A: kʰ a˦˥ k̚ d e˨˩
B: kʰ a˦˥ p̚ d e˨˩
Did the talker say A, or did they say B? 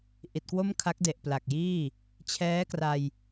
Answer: A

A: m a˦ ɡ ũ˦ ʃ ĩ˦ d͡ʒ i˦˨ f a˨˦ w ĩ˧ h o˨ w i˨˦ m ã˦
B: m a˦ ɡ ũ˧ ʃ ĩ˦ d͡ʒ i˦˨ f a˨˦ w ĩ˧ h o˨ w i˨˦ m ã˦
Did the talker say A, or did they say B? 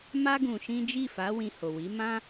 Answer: B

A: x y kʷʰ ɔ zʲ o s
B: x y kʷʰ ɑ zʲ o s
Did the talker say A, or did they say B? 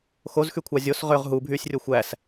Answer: B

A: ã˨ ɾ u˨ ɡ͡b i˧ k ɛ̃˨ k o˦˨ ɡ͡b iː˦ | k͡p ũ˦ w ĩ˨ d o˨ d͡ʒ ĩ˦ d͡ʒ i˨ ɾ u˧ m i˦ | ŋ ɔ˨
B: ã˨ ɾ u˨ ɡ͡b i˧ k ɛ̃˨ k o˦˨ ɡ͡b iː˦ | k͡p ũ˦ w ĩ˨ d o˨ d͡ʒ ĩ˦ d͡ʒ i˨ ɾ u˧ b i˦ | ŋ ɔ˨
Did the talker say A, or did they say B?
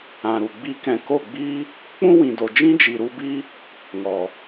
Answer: B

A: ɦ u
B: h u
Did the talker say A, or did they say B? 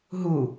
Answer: A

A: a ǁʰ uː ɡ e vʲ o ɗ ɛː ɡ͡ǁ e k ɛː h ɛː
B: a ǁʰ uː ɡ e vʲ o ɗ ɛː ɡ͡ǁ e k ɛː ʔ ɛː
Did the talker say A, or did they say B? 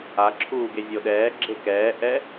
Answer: B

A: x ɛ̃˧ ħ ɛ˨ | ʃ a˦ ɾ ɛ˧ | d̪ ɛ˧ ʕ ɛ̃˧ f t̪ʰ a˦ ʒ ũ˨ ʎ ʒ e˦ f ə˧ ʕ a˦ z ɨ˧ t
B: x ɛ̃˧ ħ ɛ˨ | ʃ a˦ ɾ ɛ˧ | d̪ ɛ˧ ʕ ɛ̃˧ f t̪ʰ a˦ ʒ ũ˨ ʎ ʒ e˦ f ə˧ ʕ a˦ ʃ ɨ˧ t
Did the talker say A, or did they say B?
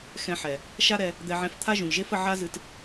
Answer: A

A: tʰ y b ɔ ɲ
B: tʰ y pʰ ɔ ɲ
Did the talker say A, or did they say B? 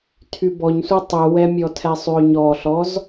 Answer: A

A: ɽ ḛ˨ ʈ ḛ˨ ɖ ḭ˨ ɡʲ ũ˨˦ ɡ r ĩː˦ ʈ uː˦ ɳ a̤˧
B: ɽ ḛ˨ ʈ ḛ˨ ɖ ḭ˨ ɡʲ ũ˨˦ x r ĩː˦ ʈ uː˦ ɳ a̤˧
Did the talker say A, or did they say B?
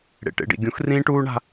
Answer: B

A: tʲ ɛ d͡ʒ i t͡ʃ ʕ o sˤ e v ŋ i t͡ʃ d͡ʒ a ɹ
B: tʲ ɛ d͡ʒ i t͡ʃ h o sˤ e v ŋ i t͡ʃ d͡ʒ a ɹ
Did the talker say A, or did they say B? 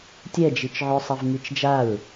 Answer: A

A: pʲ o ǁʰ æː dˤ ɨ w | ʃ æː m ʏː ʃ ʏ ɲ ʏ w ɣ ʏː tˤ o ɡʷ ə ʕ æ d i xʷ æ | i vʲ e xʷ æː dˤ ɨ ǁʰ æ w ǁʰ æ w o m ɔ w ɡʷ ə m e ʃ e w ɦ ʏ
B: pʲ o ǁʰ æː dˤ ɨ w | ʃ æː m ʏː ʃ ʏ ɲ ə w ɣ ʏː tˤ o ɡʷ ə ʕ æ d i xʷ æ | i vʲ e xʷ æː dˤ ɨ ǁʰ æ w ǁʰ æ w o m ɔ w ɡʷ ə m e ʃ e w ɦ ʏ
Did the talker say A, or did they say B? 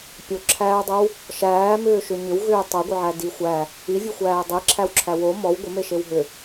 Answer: A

